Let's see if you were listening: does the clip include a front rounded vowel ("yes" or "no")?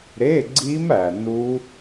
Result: no